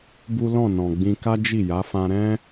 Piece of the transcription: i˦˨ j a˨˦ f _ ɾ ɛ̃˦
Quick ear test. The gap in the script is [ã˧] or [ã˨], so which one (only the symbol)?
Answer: ã˧